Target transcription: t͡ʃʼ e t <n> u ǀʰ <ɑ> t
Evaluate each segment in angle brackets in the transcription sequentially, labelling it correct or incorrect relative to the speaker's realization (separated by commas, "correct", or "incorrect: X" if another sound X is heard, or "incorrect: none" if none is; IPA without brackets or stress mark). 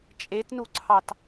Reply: correct, correct